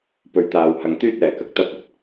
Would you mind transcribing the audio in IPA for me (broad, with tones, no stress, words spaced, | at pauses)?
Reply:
pɵ˧ɥt̪aː˧whɐ˧ŋ t̪yː˥t̚ɛː˨kɐ˧k̚ t̪ɐ˥p̚ɵ˨˥t̚